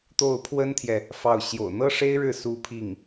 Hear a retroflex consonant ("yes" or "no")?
yes